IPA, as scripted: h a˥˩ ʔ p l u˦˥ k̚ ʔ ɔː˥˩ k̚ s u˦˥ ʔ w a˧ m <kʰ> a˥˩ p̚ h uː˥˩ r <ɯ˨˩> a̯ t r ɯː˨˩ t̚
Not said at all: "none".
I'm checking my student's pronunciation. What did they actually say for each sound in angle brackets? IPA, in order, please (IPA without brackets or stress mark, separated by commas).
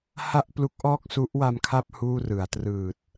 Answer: kʰ, ɯ˩˦